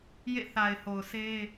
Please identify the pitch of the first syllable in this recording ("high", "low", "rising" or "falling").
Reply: falling